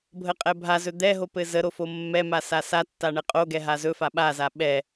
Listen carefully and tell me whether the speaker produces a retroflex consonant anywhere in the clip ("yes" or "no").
yes